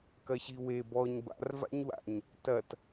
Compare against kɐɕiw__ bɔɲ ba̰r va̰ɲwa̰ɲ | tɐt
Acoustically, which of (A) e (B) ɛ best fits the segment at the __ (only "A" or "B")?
A